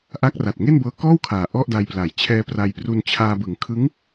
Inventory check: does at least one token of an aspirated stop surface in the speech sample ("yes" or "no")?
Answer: yes